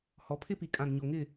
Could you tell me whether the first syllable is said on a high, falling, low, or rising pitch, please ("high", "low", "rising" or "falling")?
rising